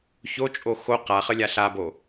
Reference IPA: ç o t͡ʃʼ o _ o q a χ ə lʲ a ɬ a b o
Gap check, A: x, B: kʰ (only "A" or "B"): A